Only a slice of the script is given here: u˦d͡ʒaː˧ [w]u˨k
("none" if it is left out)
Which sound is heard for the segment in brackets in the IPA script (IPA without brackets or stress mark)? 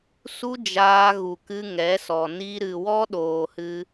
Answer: ɣ